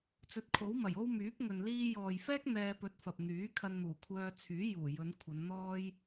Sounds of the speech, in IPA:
t͡s ɵ˨˥ t̚ kʰ o˨˥ w m ɐ˨˩ j o˥ w m yː˨˥ p̚ ŋ ɵ˨ n l iː˧ j ɔː˨ j f ɛː˥ k̚ n̪ ɛː˧ p ɵ˨˥ t̚ f ɐ˨ p̚ n̪ yː˨˥ kʰ ɐ˧ n n̪ uː˨˩ kʷʰ œː˧ t͡sʰ yː˨˥ j uː˨˩ j ɵ˨˧ n kʷʰ ɐ˨˧ n n̪ ɔː˥ j

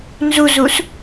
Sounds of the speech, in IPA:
n z u z u s

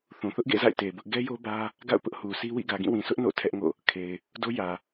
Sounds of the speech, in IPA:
θ ũ˨ θ ʊ˦ ʔ ɡ ḛ˦˨ z a̰˦˨ ɪ̯ t e˨ b ʊ˦ ʔ ɡ ɛ˦ j o˦ b ä˦ | ɡ a̰˦˨ ʊ̯ p ʊ˦ ʔ h u˨ sʰ i˦ w ḭ˦˨ ɡ ä˨ ɡ ĩ˦˨ w ĩ˨ sʰ ʊ˦ ʔ n o̰˦˨ tʰ ɛ˦ ʔ ŋ o̰˦˨ | kʰ e˨ ɪ̯ | d o˦ j ä˨

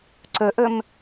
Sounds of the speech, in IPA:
ǀ ɵ ʔ ɵ m

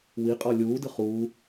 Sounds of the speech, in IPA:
w i qʼ ɔ lʲ uː d ɯ χ uː

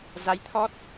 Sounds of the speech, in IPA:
z a˨˦ j t̪ʰ ɔ˦˥ t̚

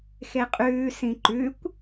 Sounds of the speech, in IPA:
x e qʼ ʉː s ĩ ǃ ʉ kʷ

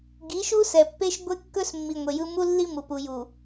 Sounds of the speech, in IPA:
ɡ i˨˦ ʃ u˦ s ɛ˨ pː e˦ ʃ ɡʷ e˦ kː ɵ˦ s mː i˨ ŋʷ e˨ j ɯ˦ m u˦ lː i˦ m u˨ p u˨ j u˨

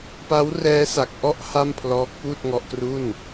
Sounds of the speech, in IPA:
p a˦˥ w r ɛː˦˥ s a˨˩ k̚ ʔ ɔ˦˥ ʔ h a˥˩ m pʰ l ɔː˦˥ k̚ p uː˥˩ t̚ ŋ ɔ˦˥ ʔ k r u˥˩ n

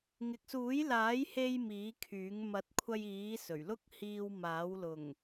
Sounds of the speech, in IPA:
ŋ ɪ˨ k̚ s uː˨˥ j l aː˨˥ j h e˧ j m iː˨˥ kʰ yː˨˥ ŋ m ɐ˨˥ t̚ kʷʰ ɐ˧ j iː˨˥ s ɵ˨˩ ɥ l ʊ˥ k̚ h iː˧ w m aː˨˥ w l ʊ˨˩ ŋ

